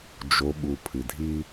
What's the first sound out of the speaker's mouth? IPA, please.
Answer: d͡ʒ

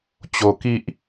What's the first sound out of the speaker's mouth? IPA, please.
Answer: t͡ɕ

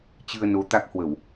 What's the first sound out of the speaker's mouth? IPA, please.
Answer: t͡ɕ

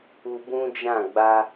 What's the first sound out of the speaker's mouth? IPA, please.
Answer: u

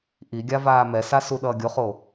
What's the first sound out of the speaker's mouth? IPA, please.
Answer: ʔ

